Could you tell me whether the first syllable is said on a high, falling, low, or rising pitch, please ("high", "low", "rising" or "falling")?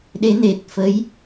rising